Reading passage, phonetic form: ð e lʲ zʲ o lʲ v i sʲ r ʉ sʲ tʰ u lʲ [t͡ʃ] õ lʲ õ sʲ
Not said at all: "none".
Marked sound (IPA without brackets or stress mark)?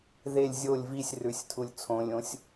t͡sʰ